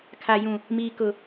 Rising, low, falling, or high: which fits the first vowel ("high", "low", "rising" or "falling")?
high